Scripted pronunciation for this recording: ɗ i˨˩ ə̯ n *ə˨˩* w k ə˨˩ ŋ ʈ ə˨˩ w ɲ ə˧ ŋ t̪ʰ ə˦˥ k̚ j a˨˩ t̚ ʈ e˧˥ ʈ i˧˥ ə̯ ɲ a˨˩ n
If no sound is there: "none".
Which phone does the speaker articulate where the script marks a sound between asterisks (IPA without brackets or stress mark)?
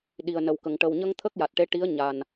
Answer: ə˨˩